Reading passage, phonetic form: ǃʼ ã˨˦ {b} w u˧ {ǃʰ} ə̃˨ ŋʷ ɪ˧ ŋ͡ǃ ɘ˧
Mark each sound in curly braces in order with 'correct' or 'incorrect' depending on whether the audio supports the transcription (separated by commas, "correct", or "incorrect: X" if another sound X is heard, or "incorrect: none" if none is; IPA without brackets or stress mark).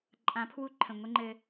incorrect: pʰ, correct